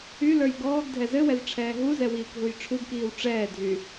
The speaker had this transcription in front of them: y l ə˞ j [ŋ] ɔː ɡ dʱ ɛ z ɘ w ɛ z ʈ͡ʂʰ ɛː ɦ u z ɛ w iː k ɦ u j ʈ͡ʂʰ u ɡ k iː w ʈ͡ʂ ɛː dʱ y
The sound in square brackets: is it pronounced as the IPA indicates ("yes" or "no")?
no